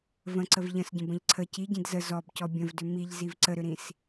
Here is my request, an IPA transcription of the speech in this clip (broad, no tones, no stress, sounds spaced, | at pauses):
v ə̃ ǀ ə v ʎ ə̃ s ɟ ə̃ b ə̃ ʎ ǀʰ ə c i ɟ ĩ d z ə z ɔ b c ɔ bʲ ə̃ v d ʏ m i ʎ z i v ǀ ə ɾ ʏ ɾ ĩ s